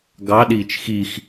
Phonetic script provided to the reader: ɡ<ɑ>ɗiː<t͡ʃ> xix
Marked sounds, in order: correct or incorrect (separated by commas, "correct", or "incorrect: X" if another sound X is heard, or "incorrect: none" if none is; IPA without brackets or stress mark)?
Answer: correct, correct